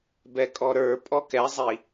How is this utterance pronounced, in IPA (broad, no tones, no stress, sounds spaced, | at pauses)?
b ɛ kʼ ɔ ɾ ə˞ pʼ ɔ k ɛ zˤ i